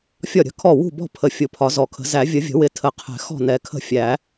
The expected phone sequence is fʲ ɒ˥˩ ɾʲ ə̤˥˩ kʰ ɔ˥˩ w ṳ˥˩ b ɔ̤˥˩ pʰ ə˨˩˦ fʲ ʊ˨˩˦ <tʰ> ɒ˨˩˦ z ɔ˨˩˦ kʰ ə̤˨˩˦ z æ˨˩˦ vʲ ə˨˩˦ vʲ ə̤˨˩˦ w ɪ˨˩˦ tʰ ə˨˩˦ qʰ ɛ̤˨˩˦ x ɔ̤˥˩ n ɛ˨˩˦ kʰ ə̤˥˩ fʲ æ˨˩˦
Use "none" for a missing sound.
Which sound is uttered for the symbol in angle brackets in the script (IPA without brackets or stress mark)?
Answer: pʰ